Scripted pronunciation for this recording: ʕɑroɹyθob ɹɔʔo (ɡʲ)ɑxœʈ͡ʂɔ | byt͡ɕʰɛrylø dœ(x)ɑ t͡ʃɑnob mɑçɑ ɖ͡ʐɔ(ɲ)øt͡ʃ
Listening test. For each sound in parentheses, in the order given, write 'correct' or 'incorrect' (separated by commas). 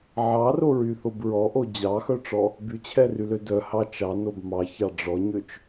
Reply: incorrect, incorrect, correct